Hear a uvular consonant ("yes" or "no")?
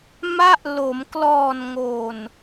no